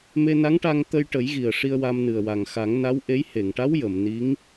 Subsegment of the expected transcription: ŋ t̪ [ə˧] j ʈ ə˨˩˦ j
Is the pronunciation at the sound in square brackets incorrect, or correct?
correct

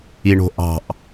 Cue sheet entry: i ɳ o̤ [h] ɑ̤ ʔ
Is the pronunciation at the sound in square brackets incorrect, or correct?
incorrect: ʔ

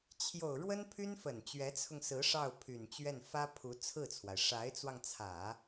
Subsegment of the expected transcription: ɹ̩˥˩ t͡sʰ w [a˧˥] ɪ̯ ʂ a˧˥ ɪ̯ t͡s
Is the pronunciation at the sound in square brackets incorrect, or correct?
incorrect: a˩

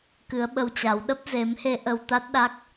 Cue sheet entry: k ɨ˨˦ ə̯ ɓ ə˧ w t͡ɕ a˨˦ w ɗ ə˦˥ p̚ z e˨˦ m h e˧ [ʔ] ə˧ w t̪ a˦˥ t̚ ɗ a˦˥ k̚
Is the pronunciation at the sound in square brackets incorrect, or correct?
correct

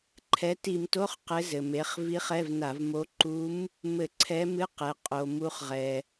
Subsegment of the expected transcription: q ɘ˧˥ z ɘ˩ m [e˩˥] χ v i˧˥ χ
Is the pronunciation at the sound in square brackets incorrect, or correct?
correct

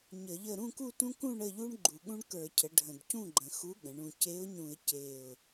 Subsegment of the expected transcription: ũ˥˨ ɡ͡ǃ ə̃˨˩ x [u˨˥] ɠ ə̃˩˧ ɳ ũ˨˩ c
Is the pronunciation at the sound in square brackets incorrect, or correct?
correct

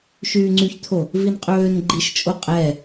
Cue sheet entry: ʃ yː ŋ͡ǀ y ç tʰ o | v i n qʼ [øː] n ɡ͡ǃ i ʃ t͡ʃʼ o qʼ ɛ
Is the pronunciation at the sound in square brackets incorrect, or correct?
correct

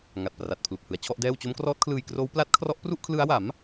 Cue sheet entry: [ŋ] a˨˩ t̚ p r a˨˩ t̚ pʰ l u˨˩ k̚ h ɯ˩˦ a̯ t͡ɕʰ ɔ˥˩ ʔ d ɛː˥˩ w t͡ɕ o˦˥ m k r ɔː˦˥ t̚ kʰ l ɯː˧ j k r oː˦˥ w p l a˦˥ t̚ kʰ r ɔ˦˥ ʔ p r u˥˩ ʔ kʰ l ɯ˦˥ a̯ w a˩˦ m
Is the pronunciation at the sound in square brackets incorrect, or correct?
correct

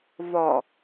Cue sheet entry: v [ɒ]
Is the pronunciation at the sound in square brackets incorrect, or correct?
correct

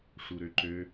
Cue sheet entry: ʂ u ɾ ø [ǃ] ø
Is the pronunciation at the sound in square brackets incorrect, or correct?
correct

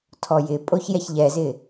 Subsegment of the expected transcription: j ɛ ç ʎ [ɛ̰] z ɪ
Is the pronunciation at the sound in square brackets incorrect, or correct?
incorrect: ɛ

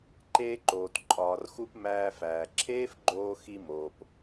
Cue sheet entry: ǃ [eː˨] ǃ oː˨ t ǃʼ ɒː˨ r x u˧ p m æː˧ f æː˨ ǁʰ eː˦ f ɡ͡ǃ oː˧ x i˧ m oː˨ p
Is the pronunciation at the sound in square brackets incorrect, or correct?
incorrect: eː˧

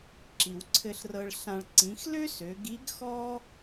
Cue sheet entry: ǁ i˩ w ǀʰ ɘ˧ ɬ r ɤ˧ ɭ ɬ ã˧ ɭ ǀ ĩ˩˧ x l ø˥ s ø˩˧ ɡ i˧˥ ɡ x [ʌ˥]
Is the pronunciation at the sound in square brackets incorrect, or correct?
incorrect: ɔ˥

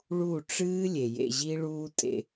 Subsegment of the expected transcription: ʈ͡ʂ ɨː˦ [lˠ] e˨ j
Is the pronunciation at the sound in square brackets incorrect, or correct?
incorrect: lʲ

